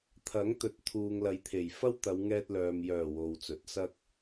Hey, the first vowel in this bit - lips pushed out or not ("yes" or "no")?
no